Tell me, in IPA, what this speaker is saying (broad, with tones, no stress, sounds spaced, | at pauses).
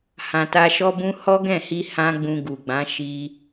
h ã˨ t a˧ ʃ ɔ˦ b ũ˦ h ɔ˦ ɡ ɛ̃˦˨ h i˧ h ã˦ ɡ͡b ũ˧ ɡ u˨ ɡ͡b ã˨˦ ʃ i˧